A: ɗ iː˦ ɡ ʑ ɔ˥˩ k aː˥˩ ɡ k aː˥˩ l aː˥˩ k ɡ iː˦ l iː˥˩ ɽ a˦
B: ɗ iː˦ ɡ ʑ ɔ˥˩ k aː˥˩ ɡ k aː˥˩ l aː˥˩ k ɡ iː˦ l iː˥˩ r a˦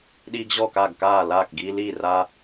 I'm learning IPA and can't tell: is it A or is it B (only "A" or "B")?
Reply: B